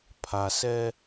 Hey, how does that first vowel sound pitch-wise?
low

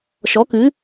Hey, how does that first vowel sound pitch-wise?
rising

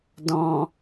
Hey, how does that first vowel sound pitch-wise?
low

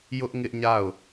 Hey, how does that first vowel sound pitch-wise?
high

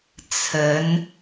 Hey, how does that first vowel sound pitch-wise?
rising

